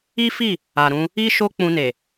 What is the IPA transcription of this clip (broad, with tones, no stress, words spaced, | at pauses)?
i˦fi˦˨ | a˨ɾũ˧ | i˦ ʃo˦k͡pũ˧ne˨